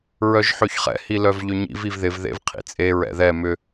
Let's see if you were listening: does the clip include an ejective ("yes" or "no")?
yes